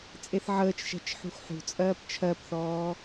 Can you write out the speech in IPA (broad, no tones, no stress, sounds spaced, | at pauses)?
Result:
t͡sʼ e θ ʕ əː t͡ʃ ʃ ɛ̤ t͡ʃ ħ ṳ x ħ ṳ t͡sʼ ɜː p t͡ʃʰ ɜ p θ ɔː